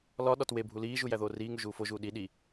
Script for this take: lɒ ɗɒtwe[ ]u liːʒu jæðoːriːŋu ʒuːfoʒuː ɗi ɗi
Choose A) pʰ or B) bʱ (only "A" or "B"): B